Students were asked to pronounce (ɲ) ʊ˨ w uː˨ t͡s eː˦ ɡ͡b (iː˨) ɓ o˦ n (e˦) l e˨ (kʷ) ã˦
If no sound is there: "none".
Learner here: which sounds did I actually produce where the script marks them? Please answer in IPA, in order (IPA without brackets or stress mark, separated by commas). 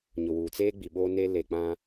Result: ɲ, i˨, e˦, k͡p